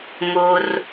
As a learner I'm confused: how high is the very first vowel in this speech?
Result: mid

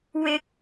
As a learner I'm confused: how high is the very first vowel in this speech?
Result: high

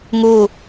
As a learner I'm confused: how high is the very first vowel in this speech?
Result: high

